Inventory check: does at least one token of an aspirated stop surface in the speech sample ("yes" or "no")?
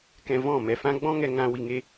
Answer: no